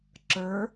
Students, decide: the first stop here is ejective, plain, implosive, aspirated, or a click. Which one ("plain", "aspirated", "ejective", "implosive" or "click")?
click